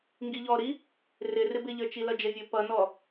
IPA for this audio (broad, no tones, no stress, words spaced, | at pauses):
ŋɡiʎɔɾi | rɪ rɪbɪʎə˞ t͡ʃilʌd͡ʒəvʲə˞ pʌnɔ